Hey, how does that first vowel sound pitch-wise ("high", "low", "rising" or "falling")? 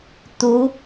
rising